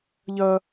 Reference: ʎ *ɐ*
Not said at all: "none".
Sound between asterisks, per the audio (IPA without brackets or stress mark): ɐ